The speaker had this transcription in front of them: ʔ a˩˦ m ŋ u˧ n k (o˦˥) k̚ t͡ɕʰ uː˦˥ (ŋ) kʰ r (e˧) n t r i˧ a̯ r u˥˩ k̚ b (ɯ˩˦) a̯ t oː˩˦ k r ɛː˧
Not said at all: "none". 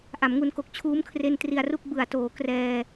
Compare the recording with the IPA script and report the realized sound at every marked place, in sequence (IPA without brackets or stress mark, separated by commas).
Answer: o˨˩, m, e˧, ɯ˩˦